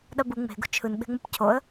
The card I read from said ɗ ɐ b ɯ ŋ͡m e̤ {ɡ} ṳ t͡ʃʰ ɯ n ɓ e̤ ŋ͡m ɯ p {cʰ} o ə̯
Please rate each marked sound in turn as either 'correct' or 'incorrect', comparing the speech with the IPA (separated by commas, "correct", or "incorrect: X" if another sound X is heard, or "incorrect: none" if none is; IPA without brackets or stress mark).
correct, correct